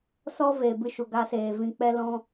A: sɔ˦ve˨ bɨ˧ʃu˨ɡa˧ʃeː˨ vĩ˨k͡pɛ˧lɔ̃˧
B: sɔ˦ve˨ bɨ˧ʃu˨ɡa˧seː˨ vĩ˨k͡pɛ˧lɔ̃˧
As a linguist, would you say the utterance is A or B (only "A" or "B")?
B